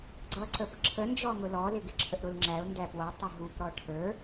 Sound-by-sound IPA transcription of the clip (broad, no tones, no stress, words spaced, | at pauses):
ɡ͡ǀʌǀəpǁʰə nd͡ʒɔŋʊlɔlɪ ɡɪǁʰəʔɾʊlŋ͡ǁæʊ̯ ndæpwʌ tˤɪɦupɾɔ ʈʰə˞